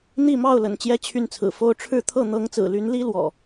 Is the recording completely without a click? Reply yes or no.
yes